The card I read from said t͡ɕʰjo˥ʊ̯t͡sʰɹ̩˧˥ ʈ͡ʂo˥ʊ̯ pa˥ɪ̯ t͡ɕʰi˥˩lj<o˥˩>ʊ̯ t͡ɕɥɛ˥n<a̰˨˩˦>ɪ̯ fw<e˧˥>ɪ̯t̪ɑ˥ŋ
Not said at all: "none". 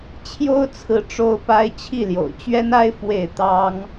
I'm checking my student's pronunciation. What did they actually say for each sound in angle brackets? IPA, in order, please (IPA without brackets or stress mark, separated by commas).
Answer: o̰˨˩, a˥, e˥˩